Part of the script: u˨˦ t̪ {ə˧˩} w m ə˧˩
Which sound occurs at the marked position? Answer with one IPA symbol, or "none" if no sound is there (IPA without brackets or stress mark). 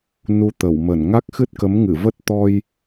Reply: ə˧˩